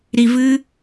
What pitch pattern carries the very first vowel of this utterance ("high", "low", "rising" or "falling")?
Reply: low